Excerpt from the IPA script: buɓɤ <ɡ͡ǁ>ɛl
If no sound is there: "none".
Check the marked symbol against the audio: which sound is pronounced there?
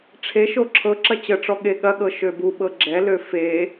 ɡ͡ǁ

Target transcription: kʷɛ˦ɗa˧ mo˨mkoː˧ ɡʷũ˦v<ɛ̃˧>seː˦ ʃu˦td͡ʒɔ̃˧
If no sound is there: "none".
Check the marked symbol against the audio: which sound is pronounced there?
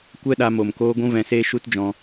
ɛ̃˧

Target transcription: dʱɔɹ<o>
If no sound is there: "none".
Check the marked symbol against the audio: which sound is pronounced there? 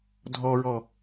ɔ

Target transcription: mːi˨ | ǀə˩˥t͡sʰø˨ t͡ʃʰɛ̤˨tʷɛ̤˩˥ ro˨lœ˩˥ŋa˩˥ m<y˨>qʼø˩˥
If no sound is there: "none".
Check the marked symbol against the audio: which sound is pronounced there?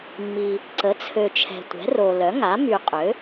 y˨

